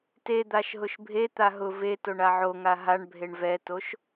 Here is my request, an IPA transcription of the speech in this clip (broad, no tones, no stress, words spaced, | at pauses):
ted̪aʃɦʊʃ bʱet̪a ɦʊv etoɳa ʕoŋa ɦaɳbʱeɳ vɛtoʃ